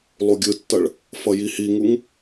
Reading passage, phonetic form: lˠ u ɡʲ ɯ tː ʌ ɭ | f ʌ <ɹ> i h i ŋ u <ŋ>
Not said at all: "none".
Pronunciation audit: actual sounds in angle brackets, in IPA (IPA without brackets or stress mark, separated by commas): j, ŋ